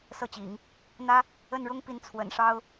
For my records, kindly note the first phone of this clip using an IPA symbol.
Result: s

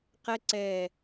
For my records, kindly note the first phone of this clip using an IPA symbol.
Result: q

